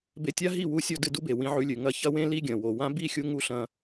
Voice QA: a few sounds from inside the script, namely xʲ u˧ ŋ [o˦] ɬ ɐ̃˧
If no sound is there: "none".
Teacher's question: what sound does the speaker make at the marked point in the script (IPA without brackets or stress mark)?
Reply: u˦